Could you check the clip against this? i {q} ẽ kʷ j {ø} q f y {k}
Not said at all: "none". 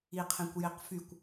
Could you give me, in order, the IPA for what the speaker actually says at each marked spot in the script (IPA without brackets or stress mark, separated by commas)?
qʰ, e, kʷ